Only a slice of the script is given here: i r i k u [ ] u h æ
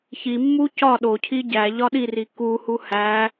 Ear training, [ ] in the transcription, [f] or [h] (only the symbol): h